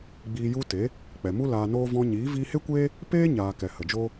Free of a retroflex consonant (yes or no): yes